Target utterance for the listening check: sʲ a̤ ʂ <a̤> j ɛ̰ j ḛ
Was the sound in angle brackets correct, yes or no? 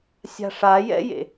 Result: no